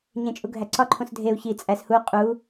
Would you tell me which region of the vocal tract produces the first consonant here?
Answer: palate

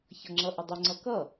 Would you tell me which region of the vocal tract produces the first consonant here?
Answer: palate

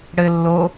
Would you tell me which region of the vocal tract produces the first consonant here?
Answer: retroflex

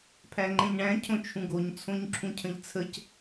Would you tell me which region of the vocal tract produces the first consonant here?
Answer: lips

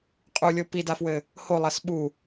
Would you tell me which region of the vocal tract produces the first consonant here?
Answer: uvula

